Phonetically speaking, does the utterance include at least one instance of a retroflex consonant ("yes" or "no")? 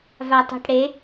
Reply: yes